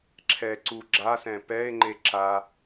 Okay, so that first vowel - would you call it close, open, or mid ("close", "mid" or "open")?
mid